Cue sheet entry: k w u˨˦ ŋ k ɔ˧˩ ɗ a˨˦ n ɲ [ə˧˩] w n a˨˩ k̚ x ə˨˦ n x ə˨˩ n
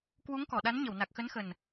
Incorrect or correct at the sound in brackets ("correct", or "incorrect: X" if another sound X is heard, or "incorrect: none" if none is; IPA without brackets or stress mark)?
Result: correct